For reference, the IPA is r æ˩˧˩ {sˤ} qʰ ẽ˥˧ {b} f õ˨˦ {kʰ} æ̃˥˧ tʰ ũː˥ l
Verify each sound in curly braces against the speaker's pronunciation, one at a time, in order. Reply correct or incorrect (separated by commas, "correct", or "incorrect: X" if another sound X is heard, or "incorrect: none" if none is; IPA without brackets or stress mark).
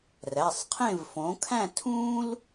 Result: correct, incorrect: v, correct